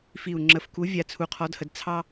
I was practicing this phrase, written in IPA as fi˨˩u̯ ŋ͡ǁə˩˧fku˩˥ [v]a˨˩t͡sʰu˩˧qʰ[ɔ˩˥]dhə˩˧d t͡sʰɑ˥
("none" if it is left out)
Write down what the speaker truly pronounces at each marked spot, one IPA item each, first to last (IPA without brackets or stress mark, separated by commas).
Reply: vʲ, ɔ˩˥